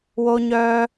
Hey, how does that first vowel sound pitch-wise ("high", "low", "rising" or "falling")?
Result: high